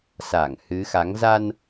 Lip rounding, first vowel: unrounded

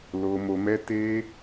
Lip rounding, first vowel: rounded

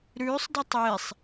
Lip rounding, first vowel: rounded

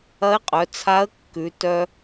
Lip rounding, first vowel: unrounded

